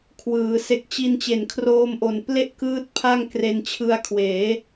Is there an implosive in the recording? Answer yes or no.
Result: no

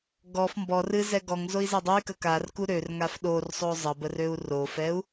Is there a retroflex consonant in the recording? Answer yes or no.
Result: no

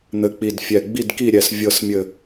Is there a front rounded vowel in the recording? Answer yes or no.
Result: no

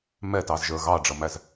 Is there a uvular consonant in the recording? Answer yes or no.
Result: no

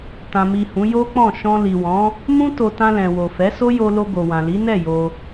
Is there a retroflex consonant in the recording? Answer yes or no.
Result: no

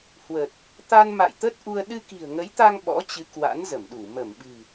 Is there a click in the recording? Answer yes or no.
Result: no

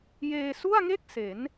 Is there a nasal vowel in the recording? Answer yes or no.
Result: no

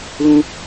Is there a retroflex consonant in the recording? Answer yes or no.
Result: no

